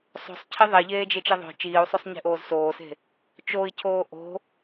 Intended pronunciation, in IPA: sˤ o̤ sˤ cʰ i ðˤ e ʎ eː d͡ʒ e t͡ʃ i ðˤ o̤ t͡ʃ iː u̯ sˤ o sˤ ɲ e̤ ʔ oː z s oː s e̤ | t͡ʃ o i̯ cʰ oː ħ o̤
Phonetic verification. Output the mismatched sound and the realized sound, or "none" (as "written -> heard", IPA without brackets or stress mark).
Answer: ħ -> ʔ